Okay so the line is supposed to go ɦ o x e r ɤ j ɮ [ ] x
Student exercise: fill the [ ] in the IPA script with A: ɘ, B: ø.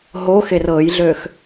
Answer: B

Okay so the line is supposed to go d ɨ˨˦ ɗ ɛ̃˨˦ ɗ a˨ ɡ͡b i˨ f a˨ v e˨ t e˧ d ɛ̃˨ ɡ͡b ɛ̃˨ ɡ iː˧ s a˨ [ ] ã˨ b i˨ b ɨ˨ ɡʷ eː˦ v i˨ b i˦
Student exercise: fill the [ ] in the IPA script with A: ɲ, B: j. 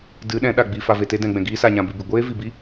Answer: A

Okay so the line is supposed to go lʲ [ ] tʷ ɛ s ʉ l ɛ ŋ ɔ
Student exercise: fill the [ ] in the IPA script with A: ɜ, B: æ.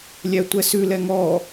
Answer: B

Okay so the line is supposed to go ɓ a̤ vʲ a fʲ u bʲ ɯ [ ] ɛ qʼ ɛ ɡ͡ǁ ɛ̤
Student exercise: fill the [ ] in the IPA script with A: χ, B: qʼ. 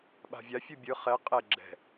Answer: A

